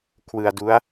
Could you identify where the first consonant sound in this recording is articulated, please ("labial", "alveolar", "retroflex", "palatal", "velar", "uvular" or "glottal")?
velar